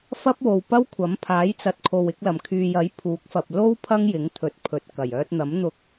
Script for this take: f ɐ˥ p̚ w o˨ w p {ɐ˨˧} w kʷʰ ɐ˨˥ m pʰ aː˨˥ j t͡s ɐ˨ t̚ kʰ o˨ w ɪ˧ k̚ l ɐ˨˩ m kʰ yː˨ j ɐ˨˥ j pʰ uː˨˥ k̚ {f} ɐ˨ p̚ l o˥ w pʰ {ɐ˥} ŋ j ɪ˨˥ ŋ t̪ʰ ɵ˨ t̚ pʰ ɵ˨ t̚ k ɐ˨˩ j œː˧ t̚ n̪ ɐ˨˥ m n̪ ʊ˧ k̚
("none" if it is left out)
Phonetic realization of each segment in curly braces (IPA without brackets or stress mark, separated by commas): ɐ˥, f, ɐ˥